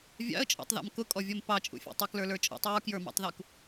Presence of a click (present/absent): absent